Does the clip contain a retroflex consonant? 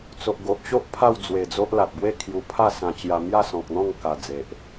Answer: no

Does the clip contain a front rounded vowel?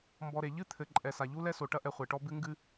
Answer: no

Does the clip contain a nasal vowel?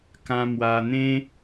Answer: yes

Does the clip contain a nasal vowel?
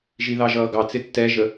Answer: no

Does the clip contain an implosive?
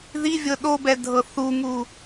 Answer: yes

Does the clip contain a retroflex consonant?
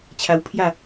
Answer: no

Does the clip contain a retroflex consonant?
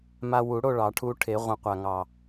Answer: yes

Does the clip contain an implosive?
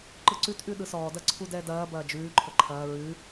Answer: yes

